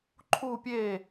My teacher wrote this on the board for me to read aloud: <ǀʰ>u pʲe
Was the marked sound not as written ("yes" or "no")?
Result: yes